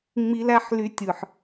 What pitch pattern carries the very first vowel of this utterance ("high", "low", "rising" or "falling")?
high